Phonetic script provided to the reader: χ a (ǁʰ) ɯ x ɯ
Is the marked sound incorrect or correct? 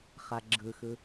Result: incorrect: ɡ͡ǁ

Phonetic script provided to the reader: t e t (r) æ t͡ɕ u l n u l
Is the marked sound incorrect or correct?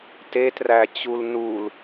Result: correct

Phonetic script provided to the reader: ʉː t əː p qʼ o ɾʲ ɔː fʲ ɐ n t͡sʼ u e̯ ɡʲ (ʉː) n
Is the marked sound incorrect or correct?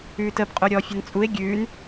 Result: correct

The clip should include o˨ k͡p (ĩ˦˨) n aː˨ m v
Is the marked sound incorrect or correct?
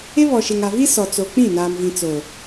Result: correct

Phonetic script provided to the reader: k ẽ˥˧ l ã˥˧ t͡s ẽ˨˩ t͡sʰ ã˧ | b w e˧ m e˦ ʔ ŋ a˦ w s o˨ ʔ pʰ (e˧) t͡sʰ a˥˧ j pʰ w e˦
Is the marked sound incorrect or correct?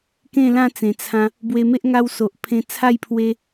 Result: incorrect: ẽ˧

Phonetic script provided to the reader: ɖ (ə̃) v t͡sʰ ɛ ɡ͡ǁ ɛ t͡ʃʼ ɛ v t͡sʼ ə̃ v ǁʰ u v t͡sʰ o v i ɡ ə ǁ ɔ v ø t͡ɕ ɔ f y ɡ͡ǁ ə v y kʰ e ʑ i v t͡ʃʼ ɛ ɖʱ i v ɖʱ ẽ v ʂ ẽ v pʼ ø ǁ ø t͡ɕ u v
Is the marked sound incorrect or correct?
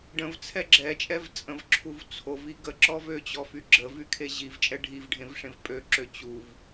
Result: correct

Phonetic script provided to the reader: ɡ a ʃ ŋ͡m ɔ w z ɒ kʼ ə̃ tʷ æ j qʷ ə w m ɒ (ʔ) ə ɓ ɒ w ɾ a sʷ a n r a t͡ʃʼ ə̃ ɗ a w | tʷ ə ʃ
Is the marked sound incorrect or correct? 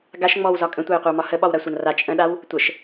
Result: incorrect: h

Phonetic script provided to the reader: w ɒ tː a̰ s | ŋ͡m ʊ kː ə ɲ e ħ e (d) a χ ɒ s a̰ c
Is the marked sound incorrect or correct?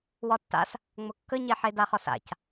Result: correct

